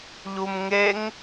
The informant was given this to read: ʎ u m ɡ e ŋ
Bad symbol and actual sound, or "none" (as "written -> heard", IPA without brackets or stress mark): ɡ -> ŋ